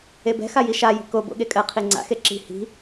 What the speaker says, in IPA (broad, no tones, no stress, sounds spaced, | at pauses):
e b ɛ̤ x a j i ʃ a j i̤ k o b o̰ ɠ e kʼ ɜ qʰ i ŋ͡ǀ a̰ x e ǁ i̤ h i̤